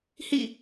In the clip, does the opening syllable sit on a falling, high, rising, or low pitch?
falling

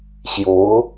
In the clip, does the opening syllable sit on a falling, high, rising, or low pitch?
rising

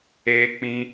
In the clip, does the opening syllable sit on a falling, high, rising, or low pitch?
low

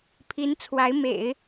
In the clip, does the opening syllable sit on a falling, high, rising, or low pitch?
rising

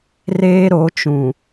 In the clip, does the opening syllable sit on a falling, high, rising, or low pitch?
high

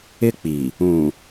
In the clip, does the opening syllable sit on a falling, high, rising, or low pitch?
high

